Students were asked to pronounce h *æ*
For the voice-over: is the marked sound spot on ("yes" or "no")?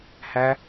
yes